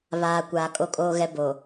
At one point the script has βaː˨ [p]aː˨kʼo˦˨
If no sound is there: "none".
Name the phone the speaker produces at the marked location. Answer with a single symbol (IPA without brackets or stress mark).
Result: kʷ